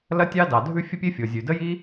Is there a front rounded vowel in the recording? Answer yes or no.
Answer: no